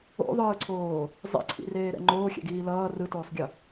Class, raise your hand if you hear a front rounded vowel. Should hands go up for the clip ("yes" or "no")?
no